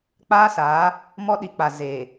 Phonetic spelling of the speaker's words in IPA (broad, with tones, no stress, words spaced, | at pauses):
k͡paː˦saː˨˦ | mɔ˦ɗi˨k͡pa˨zeː˨